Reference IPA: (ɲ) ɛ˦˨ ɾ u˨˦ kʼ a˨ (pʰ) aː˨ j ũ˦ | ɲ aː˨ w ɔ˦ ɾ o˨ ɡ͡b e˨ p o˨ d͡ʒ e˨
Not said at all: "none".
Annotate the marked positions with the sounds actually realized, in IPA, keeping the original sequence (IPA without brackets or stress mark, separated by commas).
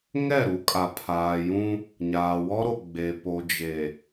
ŋ, pʰ